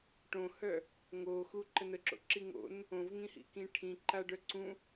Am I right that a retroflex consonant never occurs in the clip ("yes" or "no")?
no